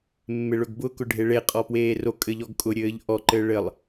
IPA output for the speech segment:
mː e ɭ ɵ ɡ b ʊ k ʊ ɖʱ e ɭ e qʼ ɔ p w eː r o kʼ ɘ ʎ ɔ ɡ kʼ ʊ ɾʲ ɘː ʎ ʔ ɔ ǃ ɘː ɭ ɘ lˠ

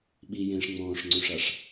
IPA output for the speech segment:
ɓ i j ẽː ʂ ŋ͡m ɔ̃ː ʂ ŋ͡ǀ õ ʂ a ʂ

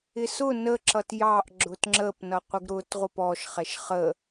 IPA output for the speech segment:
ɪ s ʊ n ə ǁ ʌ t j ɑ ʔ ɡ͡ǁ ʊ t ŋ͡ǁ ə p n ʌ qʷ ɪ ɡ ɾ ʊ t ʁʷ ə p ɔ ʃ χ ɛ ʃ χ ə

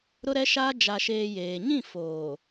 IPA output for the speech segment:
ɾ ʊ˦ ɾ ɛ˦ ʃ aː˦ d͡ʒ a˨ ʃ eː˨ j eː˨ ɲ ĩ˦˨ f oː˨

